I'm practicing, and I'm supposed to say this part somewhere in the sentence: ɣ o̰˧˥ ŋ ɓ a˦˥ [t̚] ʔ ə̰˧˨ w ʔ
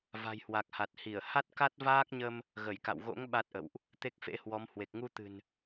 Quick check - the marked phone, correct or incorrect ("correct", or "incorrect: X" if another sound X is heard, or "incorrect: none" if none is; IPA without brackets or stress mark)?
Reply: correct